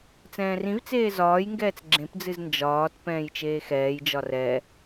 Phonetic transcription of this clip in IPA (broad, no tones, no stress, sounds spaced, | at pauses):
t͡s ɛ̃ː r ĩ v t͡s eː z ɒː j ŋ ɡ ɛː t͡s ɡ͡ǁ ẽ p d͡z ɨ z n d͡ʒ ɒː t p ɛ̃ː j t͡ʃ eː x ɛː j d͡ʒ ɒ r ɛ